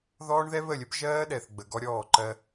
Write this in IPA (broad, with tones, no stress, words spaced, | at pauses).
ðɔː˦ɳðɛ˦βə˦˨lʲə˦b ʒɜː˦ɗɛ˨θɡ͡bə˨ ɡɔ˦ɾʲɔː˦˨ǃɜ˦